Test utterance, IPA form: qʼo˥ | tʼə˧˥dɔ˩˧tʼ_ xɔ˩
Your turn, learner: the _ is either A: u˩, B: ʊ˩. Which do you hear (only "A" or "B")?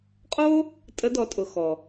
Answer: B